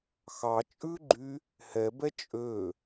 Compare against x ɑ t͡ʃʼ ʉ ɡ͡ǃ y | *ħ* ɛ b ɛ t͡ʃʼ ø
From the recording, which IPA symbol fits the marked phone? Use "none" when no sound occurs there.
h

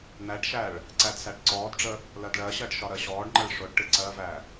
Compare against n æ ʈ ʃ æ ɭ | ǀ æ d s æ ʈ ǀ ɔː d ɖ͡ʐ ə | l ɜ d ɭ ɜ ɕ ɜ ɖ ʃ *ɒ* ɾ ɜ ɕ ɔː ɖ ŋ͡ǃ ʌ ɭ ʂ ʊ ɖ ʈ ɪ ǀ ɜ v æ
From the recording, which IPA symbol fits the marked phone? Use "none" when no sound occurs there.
ɒ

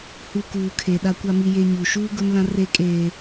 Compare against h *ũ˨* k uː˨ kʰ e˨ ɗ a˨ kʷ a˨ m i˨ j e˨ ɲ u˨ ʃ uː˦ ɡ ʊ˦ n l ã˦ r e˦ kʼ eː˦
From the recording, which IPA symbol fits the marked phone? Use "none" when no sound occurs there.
u˨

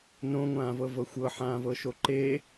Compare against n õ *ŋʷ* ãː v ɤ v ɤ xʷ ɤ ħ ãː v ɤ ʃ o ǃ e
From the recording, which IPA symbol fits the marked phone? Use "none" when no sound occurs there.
ŋʷ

